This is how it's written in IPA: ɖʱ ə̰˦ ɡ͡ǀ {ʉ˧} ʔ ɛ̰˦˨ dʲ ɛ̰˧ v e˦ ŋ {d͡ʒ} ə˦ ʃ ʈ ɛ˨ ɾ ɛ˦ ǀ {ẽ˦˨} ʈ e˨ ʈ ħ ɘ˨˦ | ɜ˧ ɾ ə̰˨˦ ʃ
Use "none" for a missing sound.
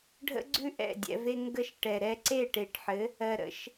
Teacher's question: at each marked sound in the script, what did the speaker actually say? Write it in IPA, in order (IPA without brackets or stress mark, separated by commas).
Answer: ʉ˦, ɡ, e˦˨